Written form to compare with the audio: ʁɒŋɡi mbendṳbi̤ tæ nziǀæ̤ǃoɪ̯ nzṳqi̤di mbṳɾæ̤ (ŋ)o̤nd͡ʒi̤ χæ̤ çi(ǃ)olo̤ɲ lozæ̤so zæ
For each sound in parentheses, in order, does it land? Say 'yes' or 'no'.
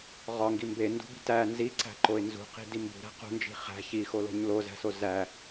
no, no

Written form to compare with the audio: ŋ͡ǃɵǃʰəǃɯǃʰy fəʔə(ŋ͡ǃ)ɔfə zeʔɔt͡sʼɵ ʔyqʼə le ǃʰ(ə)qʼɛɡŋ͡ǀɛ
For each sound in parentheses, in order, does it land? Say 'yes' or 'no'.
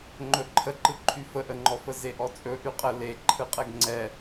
yes, no

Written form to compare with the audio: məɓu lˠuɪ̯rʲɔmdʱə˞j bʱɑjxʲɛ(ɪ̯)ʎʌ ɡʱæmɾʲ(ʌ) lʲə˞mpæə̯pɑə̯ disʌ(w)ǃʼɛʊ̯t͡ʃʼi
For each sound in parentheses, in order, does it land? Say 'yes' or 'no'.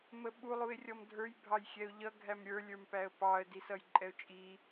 no, no, no

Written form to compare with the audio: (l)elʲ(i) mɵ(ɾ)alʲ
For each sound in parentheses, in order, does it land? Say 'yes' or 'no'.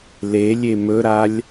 yes, no, yes

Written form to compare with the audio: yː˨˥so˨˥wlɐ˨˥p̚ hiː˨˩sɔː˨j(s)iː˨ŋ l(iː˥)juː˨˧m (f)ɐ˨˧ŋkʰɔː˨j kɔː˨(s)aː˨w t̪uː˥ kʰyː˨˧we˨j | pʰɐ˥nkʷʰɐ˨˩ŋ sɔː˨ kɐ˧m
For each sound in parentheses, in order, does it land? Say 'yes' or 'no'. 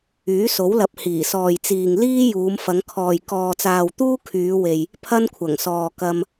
no, yes, yes, no

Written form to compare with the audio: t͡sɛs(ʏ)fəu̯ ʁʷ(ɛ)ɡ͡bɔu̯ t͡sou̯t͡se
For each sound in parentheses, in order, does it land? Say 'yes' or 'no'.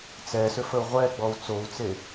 yes, yes

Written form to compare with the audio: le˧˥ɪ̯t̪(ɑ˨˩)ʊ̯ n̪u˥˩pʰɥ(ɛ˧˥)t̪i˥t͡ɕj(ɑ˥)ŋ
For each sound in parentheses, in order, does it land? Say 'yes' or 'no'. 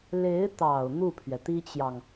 yes, no, no

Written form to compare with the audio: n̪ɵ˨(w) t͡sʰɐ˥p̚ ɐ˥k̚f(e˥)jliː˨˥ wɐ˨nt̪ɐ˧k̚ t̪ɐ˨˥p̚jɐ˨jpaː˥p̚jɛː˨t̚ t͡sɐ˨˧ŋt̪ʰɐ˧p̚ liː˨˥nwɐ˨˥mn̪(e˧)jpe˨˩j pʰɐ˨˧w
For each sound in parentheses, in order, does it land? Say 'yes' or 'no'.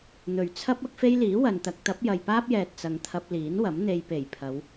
no, yes, yes

